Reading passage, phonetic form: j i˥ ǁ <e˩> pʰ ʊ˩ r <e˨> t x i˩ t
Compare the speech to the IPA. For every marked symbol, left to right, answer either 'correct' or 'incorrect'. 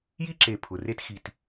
incorrect: e˨, incorrect: e˦

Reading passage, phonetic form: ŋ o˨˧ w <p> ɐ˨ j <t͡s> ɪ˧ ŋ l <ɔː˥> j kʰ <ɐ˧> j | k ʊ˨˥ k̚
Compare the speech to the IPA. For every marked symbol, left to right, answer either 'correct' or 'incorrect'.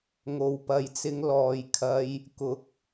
correct, correct, incorrect: ɔː˨, correct

